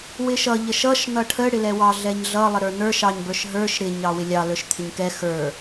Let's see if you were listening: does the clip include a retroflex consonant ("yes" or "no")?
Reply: yes